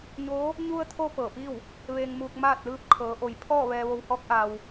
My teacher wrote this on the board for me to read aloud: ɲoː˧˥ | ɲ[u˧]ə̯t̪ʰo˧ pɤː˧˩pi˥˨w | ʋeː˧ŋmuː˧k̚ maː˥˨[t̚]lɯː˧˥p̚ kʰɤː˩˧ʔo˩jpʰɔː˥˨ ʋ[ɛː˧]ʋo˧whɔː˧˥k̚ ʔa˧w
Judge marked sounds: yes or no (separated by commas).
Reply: yes, yes, yes